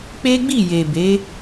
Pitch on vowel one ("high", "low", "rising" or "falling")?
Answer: high